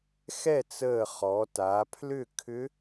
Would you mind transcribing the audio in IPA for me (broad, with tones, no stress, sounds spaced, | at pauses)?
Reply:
x ɛ˥˨ t͡s əː˧˩ χ ɔ˩˧ t a˩˧ pʰ l ʏ˥˨ kʰ ʏ˧˥